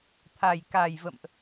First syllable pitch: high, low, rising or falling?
low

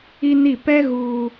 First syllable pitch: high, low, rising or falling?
high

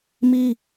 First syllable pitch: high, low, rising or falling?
high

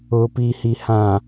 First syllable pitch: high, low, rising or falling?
low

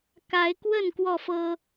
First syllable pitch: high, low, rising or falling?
rising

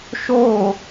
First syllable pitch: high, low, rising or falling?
falling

